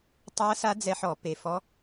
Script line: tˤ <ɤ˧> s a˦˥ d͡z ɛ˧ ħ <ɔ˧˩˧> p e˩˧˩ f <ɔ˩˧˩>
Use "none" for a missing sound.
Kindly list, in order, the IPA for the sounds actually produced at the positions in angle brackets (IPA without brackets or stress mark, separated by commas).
ɤ˦˥, ɔ˧˩˧, ɔ˦˥